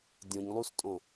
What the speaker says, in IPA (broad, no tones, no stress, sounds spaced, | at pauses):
dʲ õ ɲ lˠ u s tʼ õ